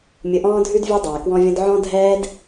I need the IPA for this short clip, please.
mʲ ʊ˧ ʔ ɔ̃ː˦ dʱ ʉ˦ d vʲ ɔ˦ dˤ ɛː˨ k w ɔ̃˦ vʲ ɔ̃˦ d ʕ ɔ̃˦ dʱ ɛː˦ d

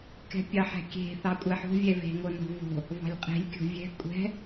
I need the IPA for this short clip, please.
k ɛ̤ pʲ ɑ ħ ɛ̤ kʲ e̤ θ ɑ kʷʼ ɛ ħ o̤ vʲ ɛ v e̤ ŋ o n o̤ v o̤ | v ɑ̤ lʲ qʼ e̤ lʲ kʲ o̤ vʲ ɛ̤ kʷʼ ɛ̤

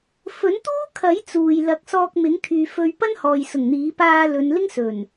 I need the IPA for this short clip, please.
f ɵ˨˥ n t̪ uː˥ kʰ ɐ˨˥ j t͡s uː˨ j l ɐ˨˥ k̚ s ɔː˧ k̚ m ɪ˨˥ ŋ t̪ʰ yː˨˧ f ɵ˧ ɥ p ɐ˥ n h ɔː˨ j s ʊ˨˩ ŋ n̪ iː˨˥ p aː˧ l ɵ˨˧ n l ɪ˥ ŋ s ɵ˨˩ n

